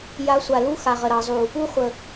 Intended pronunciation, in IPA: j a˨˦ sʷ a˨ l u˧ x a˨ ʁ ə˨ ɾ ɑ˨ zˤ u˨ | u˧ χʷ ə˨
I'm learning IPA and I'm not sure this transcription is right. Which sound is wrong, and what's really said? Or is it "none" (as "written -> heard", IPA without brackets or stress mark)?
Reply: none